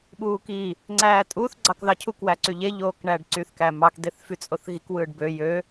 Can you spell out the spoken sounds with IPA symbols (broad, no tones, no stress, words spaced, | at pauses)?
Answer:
ɓuːki | ŋ͡ǀæːtʼuθ ɡ͡ǀɑkðɑcʰuk wæǀyʎe ʎoːkɳæːɖǀyθ kæmɑk deθfyt͡sʼoθɣik wɯːɖbø jø